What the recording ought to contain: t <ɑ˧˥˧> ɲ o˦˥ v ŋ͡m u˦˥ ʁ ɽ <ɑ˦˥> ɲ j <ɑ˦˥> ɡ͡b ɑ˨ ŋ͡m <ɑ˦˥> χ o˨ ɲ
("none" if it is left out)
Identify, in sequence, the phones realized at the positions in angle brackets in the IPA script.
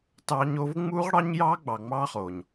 ɑ˦˥, ɑ˦˥, ɑ˦˥, ɑ˦˥

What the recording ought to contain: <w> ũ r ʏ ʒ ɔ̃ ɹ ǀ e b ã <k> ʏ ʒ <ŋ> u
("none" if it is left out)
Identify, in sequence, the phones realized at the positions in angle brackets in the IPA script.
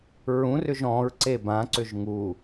ɹ, ǀ, ŋ

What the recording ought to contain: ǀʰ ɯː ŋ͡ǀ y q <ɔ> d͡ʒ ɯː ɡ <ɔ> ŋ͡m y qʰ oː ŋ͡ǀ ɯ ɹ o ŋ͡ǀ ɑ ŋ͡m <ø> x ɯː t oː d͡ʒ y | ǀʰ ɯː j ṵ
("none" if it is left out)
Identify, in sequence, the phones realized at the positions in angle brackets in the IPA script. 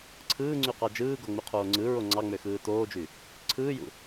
ɑ, o, ø

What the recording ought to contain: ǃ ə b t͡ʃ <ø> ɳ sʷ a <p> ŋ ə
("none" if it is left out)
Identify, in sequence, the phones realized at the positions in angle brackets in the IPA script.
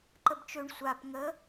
ø, p

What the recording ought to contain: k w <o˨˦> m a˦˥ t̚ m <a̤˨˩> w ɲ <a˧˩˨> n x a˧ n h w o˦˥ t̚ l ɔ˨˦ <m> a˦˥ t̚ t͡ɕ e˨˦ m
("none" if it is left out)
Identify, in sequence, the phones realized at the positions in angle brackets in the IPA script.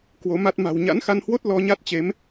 o˨˦, a̤˨˩, a̰˧˥, ɲ

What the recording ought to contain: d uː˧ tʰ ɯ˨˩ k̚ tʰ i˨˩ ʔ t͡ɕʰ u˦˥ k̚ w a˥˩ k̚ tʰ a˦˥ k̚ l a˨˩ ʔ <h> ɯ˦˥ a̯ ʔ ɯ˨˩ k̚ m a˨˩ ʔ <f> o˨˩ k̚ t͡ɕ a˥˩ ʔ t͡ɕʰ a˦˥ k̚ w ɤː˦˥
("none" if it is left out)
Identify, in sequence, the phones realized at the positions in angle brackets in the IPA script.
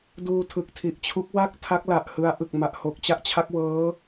h, h

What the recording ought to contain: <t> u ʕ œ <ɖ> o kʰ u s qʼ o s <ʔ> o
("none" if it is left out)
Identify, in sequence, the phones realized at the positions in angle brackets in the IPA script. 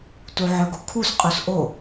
t, ɡ, ʔ

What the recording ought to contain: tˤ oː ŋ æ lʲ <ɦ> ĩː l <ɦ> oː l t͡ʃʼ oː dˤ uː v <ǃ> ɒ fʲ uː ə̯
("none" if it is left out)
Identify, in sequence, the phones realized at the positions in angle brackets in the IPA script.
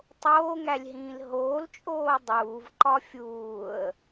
ɦ, ɦ, ǃ

